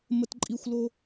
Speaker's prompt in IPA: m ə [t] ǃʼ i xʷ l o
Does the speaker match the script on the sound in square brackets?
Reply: yes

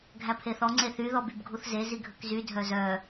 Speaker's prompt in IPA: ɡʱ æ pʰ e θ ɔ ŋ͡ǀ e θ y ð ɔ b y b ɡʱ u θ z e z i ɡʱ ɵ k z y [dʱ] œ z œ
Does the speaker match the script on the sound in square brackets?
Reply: yes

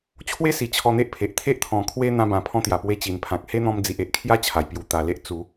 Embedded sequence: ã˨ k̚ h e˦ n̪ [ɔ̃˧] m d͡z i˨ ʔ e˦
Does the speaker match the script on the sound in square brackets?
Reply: yes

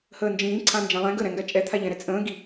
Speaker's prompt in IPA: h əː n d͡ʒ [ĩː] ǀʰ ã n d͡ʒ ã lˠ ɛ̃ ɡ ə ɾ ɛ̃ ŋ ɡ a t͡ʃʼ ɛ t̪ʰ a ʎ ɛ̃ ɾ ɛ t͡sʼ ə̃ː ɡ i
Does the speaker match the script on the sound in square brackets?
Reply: yes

